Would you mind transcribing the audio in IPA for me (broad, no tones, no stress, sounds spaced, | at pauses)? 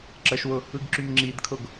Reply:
ǁ ə ʃ w ʊ | ɯ ɡ ǁ y m ŋ͡ǁ i d kʰ ʊ ɡ